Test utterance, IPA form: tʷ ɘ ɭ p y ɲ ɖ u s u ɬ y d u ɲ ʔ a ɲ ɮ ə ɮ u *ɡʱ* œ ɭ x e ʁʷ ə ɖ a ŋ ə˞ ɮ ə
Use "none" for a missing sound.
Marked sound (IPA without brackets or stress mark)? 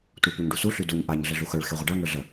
x